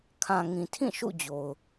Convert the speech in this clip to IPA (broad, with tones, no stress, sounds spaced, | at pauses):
kʰ ã˨ ŋ ĩ˨ tʰ ĩ˦˨ ʃ ṵ˦˨ d͡ʑ o˨ ʊ̯